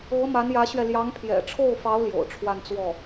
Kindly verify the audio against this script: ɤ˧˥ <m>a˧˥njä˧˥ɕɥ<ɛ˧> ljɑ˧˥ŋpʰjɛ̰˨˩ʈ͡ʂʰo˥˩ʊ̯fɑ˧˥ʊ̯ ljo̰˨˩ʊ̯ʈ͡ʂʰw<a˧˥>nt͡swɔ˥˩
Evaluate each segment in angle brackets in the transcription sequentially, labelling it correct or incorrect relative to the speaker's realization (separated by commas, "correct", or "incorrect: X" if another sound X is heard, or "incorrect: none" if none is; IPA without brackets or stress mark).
correct, correct, incorrect: a˥˧